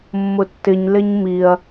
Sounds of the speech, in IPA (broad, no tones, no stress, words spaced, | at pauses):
mːʊtːɪɲ lɪɲmiɐ̯